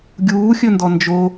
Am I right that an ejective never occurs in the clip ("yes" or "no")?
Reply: yes